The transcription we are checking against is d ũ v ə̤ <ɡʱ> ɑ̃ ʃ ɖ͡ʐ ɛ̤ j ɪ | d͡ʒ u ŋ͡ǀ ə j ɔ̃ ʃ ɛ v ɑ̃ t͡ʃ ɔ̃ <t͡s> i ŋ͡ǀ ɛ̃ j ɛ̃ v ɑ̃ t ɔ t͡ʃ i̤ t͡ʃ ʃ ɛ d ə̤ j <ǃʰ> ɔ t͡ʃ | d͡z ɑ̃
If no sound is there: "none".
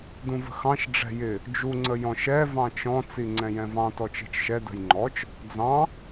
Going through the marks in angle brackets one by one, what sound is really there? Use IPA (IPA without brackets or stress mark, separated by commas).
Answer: x, t͡s, ŋ͡ǃ